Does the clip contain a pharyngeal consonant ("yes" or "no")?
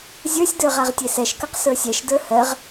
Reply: no